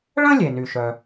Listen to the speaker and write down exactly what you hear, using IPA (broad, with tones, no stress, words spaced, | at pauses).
ɭə̃˥lʲe˩ny˩ ʃœ˩